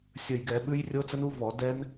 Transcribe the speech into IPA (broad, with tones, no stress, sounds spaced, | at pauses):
sʲ ə˨˩ j ɡ ɛ˧˩˧ ɓ ʉ˦˥ j rʲ o˦˥ t͡s ə˦˥ n u˦˥ v ɔ˧˩˧ d ɛ˦˥ n